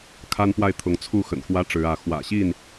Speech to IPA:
kʰ a˦ n p w a˥˨ ɪ̯ t̪ʰ ʊ˨˦ ŋ t͡sʰ u˥˨ x ə̰˨˩ n x w ä˦ ʈ͡ʂ ɻ̩˨˦ ä˨˦ x w ä̰˨˩ ɕ i˥˨ n

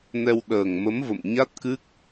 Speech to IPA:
n ɛ˧ w ɗ əː˨˩ ŋ m ə˨˦ m v ə̰˧˨ m ɲ a˦˥ t̚ k ɨ˦˥ k̚

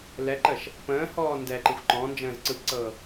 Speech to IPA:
l ɛ ǃ ə ʃ | p ə̃ː h ɔː n d ɛ ǃ ɯ xʷ ǃ ɔ̃ n d͡ʒ ə̃ː z ǀ ɯ p ǀ ɤː

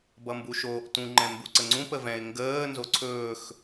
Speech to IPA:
b ʌ m b u ʃ oː ʔ t ũ ŋ͡ǃ ɛ̃ m b u ǀ ə ŋ͡ǀ ũ p ə v ɛ̃ ɪ̯ ŋ ɡ əː n z o ǀʰ ɵː x

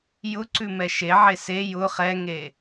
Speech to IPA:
j ʊ ǀ ʉ m ɛ ʃ e ʕ e s e j ʊ χ ɛ ŋ e

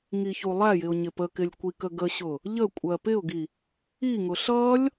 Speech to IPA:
ŋ i ç u lˠ æ j ɪ ʊ̯ ɲ ɪ p ə k ɪ lʲ kʷ i k ə ɡ ə ɕ ʊ | ʎ ə kʷʼ ɜ p ɪ ʊ̯ ɡ i | i ŋ ʊ ɬ ʌ lʲ

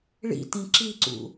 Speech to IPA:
ɭ ḭ t ĩ ǁ i ǀ ṵ

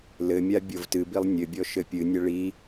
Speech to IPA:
l ɘ mʲ a bʲ o v t ɨ b i lˠ nʲ ɘ bʲ ɔ ʃ ɘ pʲ ɨ nʲ ɐ ɭ i

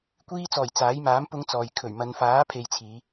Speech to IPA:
kʷ iː˧ t͡s ɔː˨˩ j t͡s aː˨˥ j m aː˨˥ m p ʊ˨˧ ŋ t͡s ɔː˨ j kʰ ɵ˨˩ ɥ m ɐ˨˧ n f aː˨˥ pʰ e˨ j t͡sʰ iː˨˧

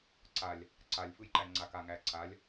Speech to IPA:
ǀ a lʲ | ǀ a lʲ f ɯ j ǃ æ ŋ͡ǀ a k a ŋ æ ǀ a lʲ

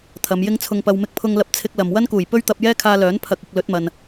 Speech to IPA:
t̪ʰ ɐ˨˧ m j ɪ˥ ŋ t͡sʰ ʊ˧ ŋ p ɐ˧ w m ɪ˧ k̚ pʰ ʊ˧ ŋ l ɐ˧ p̚ t͡sʰ ɪ˧ k̚ l ɐ˨ m w ɐ˥ n k uː˨˩ j p ɵ˥ ɥ t̪ ɐ˧ p̚ j ɛː˥ kʰ aː˧ l œː˨˥ n pʰ ɐ˨ k̚ ɪ˨ k̚ l ɵ˨˥ t̚ m ɐ˨ n

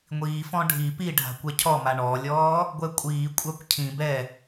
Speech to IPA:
ŋʷ iː f ɔ̃ ɖʱ i p i ɖʱ a̤ kʷ ɛ cʰ ɔ m a ɳ ɔ lʲ ɔː | ɡʷ ɛ kʷʼ iː kʷʼ a kʷ cʰ ĩ b ɛ

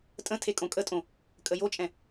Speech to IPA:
tʼ ə̃ tʰ e kʼ õ kʼ ə tʼ õ | kʼ ə j o t͡ʃʼ ɛ̃

